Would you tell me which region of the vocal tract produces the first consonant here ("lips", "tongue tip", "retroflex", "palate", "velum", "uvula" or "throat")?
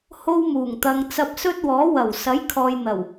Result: throat